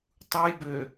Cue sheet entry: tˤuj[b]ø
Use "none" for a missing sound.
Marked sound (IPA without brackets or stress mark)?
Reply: b